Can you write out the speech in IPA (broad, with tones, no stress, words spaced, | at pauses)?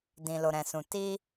dĩ˨lo˨ɾɛ̃˨sũ˨ ti˧